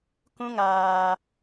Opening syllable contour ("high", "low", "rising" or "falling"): high